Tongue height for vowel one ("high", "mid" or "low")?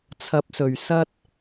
low